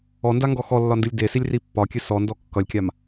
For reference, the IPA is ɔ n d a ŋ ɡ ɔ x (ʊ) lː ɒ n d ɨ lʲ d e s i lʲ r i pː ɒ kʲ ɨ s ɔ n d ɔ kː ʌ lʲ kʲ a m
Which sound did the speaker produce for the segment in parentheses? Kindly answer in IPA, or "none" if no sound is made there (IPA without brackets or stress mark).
ɔ